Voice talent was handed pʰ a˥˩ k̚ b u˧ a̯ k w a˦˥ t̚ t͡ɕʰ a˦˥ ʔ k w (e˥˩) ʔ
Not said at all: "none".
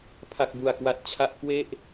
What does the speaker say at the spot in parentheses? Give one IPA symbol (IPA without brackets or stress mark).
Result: e˥˩